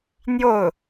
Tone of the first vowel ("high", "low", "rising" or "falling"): falling